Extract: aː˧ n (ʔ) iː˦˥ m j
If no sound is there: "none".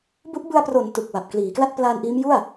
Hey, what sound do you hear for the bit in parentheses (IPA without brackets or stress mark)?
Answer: ʔ